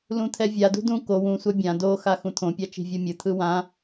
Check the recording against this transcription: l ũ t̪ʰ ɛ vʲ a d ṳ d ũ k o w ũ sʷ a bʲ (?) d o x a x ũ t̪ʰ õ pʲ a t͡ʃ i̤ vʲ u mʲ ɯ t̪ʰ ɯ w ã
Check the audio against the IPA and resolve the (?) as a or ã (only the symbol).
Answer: ã